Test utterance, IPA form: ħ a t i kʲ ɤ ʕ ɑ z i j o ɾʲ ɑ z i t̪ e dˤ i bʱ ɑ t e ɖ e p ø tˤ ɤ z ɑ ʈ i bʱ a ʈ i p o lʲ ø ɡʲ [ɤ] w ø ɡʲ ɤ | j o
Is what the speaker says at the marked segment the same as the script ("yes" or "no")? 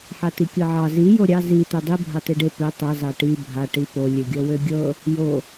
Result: yes